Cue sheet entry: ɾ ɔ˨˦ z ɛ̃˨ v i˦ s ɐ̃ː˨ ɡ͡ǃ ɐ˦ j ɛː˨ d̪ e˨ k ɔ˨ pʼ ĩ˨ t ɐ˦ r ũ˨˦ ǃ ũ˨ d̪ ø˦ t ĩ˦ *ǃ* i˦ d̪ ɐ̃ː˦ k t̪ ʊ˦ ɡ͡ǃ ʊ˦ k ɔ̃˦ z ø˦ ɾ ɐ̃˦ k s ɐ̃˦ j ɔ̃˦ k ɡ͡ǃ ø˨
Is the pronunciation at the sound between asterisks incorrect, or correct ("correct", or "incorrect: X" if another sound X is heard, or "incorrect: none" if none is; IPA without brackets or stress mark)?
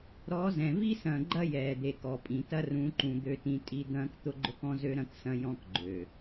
incorrect: tʼ